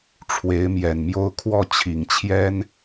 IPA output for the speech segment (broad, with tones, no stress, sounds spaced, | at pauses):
ʈ͡ʂʰ w e˧˥ ɪ̯ m j ɛ˨˩ n m j o˥ ʊ̯ kʰ w ɔ˥˩ t͡ɕʰ i˨˩ ŋ t͡ɕʰ j ɛ˥ n